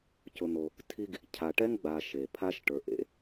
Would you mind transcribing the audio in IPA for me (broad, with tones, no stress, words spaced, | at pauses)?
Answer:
cʊ˨n̪o˨ | tʰi˦ɡ | cʰa˨ʈɛ˥ŋɡ͡baː˨ ʃe˩pʰa˦ʃ ʈə˞˨ʔḛ˦